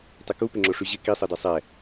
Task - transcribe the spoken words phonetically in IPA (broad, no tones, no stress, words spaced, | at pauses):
tˤɪkupɪ ŋ͡ǁoʂyʑɪ kisˤɤde sˤɛ